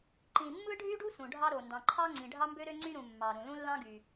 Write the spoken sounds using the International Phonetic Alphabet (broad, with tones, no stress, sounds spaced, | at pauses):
ǃ ĩ˨ mː ɯ˥ ɖʱ y˥ ɖ u˥ s ũ˨ ɖʱ ɑ˥ ɾ o˨ n d ɑ̃˨ ǃʰ ɑ˥ ŋ͡ǀ ĩ˨ ɖʱ ɑ˥ m b ø˥ ɾ ø˥ ŋ͡ǀ y˥ ɾ ũ˨ mː ɑ˨ ɾ ũ˨ l ũ˥ lː ɑ̃˥ ɡ y˨